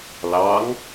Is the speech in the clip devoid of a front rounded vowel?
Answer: yes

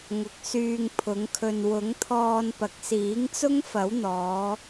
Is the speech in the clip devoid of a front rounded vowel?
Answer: no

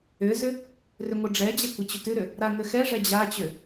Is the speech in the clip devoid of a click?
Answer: yes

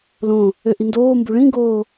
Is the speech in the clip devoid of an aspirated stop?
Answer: yes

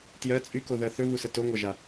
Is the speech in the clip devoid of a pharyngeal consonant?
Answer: yes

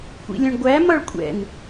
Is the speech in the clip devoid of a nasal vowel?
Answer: no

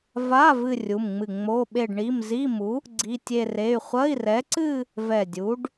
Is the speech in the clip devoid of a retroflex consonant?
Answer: no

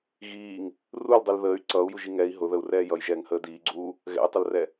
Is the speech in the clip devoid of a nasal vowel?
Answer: yes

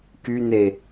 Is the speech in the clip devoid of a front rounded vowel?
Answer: no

